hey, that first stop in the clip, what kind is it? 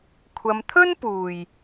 aspirated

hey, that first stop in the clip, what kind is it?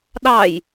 implosive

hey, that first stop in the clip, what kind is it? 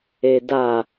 plain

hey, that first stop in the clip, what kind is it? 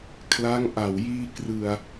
aspirated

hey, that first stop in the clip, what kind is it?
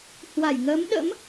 implosive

